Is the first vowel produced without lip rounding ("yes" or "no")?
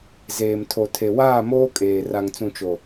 yes